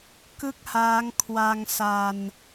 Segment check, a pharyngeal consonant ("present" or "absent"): absent